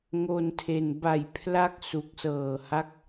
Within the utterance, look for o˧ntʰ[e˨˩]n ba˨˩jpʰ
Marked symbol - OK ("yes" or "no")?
yes